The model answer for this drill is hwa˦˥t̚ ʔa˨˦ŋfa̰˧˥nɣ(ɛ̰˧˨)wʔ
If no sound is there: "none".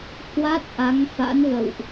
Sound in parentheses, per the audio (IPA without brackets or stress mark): ə̰˧˨